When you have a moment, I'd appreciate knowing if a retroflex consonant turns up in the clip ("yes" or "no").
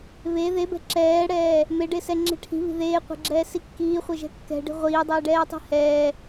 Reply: yes